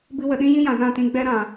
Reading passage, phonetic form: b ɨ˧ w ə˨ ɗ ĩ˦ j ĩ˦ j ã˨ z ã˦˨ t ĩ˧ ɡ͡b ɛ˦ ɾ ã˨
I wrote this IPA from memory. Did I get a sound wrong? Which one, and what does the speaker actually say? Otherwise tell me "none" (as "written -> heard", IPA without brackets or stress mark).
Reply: none